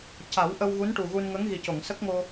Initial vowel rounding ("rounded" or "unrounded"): unrounded